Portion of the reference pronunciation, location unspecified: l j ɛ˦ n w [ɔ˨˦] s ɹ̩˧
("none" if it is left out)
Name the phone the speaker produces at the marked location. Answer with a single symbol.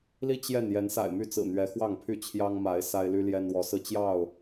ɔ˨˦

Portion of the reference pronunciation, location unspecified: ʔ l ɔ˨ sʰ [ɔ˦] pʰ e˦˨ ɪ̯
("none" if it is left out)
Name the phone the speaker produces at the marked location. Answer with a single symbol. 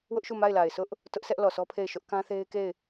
ɔ˦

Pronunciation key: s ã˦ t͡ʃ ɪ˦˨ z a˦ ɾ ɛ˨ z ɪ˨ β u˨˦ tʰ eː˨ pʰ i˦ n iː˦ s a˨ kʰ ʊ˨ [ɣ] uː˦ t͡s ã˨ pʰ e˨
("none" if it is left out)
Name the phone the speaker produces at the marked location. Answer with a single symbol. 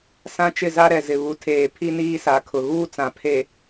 ɣ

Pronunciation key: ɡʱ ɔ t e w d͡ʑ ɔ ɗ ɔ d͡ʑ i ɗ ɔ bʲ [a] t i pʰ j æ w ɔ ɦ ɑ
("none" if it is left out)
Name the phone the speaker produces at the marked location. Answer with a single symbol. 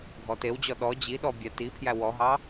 æ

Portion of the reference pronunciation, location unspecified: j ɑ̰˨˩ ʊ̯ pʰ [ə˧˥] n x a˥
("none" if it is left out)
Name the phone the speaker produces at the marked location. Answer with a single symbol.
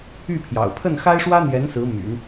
ə˥˩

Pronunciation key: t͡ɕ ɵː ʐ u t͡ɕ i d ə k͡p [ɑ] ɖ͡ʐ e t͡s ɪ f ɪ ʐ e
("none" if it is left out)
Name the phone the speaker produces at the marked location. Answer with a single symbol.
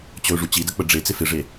ə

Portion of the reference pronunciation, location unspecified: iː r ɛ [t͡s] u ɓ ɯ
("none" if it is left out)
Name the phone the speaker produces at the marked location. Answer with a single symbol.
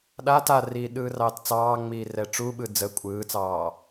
ʈ͡ʂ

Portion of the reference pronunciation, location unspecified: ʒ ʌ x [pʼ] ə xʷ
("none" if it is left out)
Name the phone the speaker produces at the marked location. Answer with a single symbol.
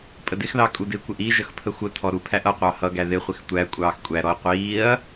pʰ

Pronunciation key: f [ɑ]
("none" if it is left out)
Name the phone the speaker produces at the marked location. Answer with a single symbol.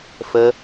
ə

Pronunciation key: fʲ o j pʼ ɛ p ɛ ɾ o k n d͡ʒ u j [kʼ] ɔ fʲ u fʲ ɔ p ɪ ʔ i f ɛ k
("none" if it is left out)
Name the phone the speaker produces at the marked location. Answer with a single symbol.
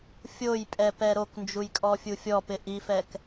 kʼ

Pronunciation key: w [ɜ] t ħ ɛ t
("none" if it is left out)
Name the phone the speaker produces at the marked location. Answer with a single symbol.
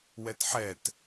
ɛ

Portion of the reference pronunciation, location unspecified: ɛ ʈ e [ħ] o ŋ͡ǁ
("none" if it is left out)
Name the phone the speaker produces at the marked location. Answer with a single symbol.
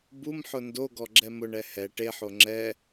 ħ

